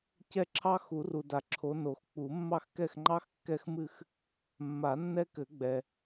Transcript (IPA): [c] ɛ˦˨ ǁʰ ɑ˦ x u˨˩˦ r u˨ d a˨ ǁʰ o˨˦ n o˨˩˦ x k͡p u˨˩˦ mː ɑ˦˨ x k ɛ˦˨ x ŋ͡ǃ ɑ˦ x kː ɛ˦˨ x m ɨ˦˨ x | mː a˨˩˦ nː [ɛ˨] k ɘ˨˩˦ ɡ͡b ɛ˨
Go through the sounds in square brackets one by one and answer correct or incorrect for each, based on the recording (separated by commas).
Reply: correct, incorrect